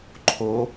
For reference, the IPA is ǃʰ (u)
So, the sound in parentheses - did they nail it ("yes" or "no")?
no